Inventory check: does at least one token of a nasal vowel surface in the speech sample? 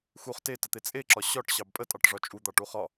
no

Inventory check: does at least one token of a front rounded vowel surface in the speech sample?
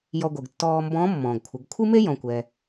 no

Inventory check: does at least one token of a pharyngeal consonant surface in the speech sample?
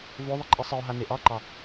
no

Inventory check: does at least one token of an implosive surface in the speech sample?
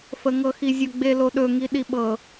yes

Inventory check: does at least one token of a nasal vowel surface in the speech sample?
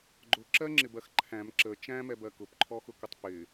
yes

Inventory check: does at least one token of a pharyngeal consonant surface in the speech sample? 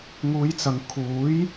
no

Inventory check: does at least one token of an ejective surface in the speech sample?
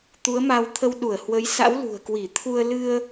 no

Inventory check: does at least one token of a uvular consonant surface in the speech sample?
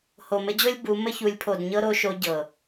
no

